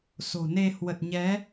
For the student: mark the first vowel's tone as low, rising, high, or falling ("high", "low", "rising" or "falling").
low